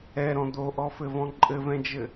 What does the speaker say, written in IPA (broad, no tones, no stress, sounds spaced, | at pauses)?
ɛ ɾ ɔ̃ d̪ o ʔ ɔ f ɘ v ɔ̃ ǃʼ ɘ v ɛ̃ d͡ʒ ɘ